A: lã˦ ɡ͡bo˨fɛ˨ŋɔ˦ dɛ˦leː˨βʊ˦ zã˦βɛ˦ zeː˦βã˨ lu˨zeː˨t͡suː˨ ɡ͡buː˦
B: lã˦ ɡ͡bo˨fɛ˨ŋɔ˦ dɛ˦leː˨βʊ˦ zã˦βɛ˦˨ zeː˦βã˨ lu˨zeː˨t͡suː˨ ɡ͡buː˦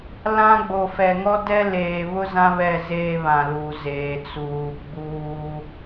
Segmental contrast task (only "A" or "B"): B